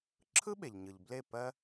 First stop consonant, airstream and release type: click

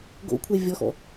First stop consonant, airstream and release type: plain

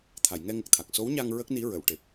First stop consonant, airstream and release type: aspirated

